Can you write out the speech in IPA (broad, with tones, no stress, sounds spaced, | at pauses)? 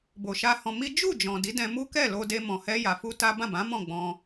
b o˨ ʃ a˧ h ɔ̃˧ m i˦ d͡ʒ u˦˨ d͡ʒ ɔ̃˨ d i˨˦ d ɛ̃˧ m u˦ k ɛ˦˨ l o˧ d e˧ m ɔ̃˨ h ɛ˧ j a˨ f u˧ t a˦ b ã˦˨ b ã˨˦ m ɔ̃˦˨ ɡ͡b ɔ̃˧